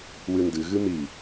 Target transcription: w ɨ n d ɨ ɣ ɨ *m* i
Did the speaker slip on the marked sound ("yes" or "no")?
no